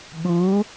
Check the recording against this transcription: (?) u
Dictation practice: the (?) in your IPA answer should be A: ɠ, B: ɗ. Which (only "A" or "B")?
A